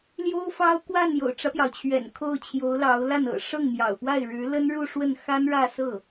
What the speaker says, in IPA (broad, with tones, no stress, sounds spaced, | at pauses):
l j o˥ ʊ̯ f ɑ˥ ʊ̯ k w a˥˩ n j o̰˨˩ ʊ̯ ʈ͡ʂ ä˦ p j ɑ˩ ʊ̯ t͡ɕʰ ɥ ɛ̰˨˩ n kʰ o˥˩ ʊ̯ t͡ɕʰ j o˧˥ ʊ̯ l ɑ˧˥ ʊ̯ l a˥˩ n ɤ̰˨˩ ʂ ɤ˥˩ ŋ m j ɑ̰˨˩ ʊ̯ p w a˥˩ ɪ̯ ɻ ɻ̩˧˥ l ə˥ n ɻ u˥˧ ʂ w ə˥˩ n x a˥ n ɻ ä˥˧ s ɤ˥˩